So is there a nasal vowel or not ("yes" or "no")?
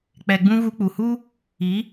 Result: yes